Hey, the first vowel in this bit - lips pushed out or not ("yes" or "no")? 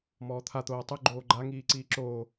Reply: yes